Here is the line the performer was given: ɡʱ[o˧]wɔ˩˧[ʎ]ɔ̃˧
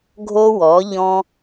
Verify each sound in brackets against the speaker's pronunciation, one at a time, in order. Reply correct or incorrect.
correct, correct

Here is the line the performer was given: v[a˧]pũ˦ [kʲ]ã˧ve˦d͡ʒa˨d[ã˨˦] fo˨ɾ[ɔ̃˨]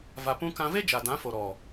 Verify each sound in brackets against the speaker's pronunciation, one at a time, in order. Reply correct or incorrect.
correct, incorrect: k, correct, incorrect: ɔ˨

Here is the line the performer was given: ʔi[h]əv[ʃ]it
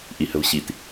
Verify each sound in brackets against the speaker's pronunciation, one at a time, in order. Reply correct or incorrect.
correct, incorrect: ɕ

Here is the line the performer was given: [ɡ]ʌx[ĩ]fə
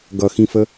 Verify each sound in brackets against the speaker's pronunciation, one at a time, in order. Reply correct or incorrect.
correct, correct

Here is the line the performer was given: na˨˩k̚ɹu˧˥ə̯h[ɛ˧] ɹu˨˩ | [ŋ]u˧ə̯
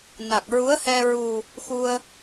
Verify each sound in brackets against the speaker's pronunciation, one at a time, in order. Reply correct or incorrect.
correct, incorrect: x

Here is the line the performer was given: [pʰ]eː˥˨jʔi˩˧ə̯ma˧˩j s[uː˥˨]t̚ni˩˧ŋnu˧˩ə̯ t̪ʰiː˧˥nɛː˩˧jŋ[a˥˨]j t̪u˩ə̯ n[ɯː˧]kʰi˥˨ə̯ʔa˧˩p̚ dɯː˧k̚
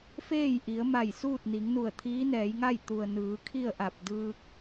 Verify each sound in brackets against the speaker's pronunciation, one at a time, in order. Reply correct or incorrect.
incorrect: f, correct, correct, incorrect: ɯː˩˧

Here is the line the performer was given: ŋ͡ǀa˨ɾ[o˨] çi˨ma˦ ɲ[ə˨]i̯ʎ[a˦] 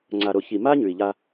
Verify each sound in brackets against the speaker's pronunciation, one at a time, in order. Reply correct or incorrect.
correct, incorrect: ʉ˨, correct

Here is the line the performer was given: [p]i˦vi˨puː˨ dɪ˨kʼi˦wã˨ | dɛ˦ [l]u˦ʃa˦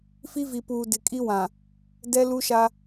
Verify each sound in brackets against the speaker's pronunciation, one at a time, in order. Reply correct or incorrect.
incorrect: f, correct

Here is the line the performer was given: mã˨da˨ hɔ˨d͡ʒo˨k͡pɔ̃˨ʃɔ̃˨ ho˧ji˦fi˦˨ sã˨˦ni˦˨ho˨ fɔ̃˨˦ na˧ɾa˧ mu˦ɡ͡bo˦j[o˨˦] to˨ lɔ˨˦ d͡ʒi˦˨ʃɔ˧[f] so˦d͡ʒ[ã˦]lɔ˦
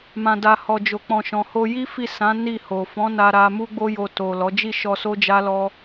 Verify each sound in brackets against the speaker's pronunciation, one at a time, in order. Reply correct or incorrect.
incorrect: o˧, incorrect: none, incorrect: a˦

